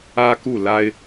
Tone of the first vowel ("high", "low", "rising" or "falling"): high